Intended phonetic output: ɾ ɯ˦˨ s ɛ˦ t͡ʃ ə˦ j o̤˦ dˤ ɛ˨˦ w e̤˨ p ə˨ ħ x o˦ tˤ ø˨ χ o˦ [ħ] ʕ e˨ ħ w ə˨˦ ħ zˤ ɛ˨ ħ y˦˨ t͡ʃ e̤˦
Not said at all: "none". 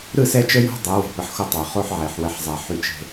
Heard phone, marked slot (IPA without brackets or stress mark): ħ